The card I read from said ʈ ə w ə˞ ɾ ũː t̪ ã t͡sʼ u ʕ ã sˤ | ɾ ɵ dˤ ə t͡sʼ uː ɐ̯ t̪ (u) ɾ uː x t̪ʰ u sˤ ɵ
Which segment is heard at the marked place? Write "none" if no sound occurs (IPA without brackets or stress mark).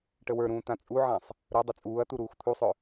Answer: u